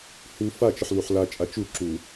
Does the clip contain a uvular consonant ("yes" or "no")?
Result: no